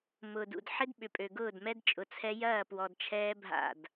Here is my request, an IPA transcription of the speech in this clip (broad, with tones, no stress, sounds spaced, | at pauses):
m ʊː˨ d ṵ˨ d ħ ɪ˦ d ɓ ʏ˨ pʼ ø˨ ɡ ʊː˦˨ d m ɛ˦ d t͡ʃʼ ʊ˨ t͡sʰ ɛ˦ j ɐː˦˨ p w ɔ˨ d t͡ʃʰ ɛː˦ bʱ a̰˦˨ d